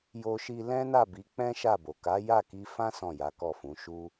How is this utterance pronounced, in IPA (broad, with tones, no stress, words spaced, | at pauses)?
jo˧ʃi˧ lɛ̃˦na˦˨ bi˨˦k͡pɛ̃˦ ʃa˦˨bo˨ ka˨˦ja˦˨ki˧fã˦ sɔ̃˦˨ja˨˦kɔ˦˨fũ˨˦ ʃu˦